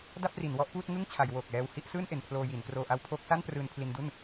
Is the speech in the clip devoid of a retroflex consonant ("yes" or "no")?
yes